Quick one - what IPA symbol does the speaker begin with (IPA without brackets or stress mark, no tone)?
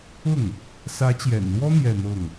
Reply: ʊ